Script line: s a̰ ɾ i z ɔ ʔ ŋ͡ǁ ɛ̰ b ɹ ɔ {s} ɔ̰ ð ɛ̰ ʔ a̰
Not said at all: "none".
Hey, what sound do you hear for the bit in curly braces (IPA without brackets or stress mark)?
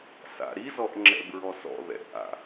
s